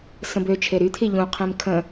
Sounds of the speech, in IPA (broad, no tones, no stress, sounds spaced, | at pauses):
s ə̃ b ø t͡ʃʰ e ɾ y t̪ʰ i ʎ ũ qʰ ẽ m kʰ ə̃